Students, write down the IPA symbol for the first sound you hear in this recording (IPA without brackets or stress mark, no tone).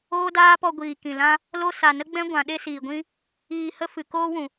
oː